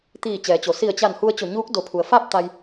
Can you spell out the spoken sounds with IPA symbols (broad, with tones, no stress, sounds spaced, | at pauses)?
t̪ iː˧˩ t͡ɕ ɛː˩˧ t͡ɕ o˩ s i˧˩ ə̯ t͡ɕ a˧˩ n h u˧ ə̯ t͡ɕ o˧˩ ɲ uː˧˥ k̚ d o˩˧ pʰ u˩ ə̯ f a˥˨ p̚ t̪ a˧ j